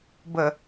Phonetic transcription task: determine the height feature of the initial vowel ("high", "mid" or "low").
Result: mid